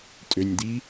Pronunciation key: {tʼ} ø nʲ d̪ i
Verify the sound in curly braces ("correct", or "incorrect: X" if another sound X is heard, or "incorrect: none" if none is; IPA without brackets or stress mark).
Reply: correct